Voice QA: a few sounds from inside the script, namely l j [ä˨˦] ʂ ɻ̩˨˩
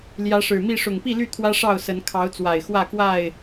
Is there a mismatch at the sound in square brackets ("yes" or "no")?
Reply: no